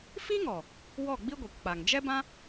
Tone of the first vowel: high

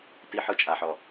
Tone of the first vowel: high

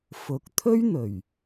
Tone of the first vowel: low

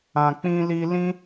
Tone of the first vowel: low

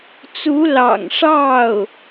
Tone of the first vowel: rising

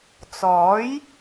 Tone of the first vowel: rising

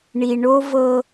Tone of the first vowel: low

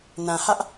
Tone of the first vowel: low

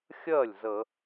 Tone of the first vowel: falling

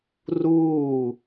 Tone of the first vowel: falling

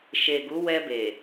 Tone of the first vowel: low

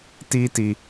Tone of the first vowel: high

